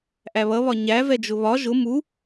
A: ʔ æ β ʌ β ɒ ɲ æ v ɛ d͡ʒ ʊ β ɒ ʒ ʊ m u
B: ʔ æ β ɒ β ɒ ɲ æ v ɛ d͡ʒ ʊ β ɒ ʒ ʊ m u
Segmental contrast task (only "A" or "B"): A